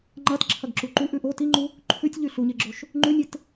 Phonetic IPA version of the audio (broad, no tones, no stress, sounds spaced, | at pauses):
ŋ͡ǃ ɐ t ǁʰ ɐ ɡ ǁ u ǃ u ʔ ʉ ʔ o t i ŋ͡ǃ u | ǃʰ ʉ tʲ ʎ ʉ ɬ u ɲ e ɡ͡ǁ o ʃ | ŋ͡ǃ ʉ nʲ e t